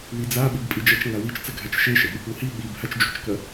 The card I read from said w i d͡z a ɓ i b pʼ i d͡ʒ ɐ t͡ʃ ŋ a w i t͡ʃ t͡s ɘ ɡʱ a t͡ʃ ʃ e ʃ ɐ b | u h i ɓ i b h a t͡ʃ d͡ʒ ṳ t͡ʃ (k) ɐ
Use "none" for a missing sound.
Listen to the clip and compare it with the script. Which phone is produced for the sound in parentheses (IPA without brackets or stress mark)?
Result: k